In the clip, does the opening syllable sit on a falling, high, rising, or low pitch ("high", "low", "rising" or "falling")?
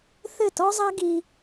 falling